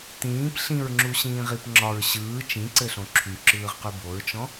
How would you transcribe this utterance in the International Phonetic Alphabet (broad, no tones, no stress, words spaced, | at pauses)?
tĩːp ɬĩɹŋ͡ǁuɕĩːʁip ŋ͡ǁɒɹ ɕɯː t͡ʃĩǀɘɬõ ǁʰyǁɯːʁqy boɹt͡ʃɔ̃